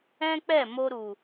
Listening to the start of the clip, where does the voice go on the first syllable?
high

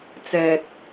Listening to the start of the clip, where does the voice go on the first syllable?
low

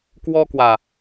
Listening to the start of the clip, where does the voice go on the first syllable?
high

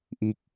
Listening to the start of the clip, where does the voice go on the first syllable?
low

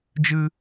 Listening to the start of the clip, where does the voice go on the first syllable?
high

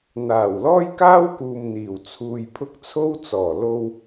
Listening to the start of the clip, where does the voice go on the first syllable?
low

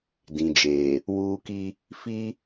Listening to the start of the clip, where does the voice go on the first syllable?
low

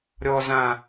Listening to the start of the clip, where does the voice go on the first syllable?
high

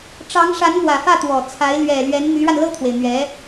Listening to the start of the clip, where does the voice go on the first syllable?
rising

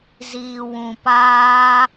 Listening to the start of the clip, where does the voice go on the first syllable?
low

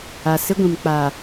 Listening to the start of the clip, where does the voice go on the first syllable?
low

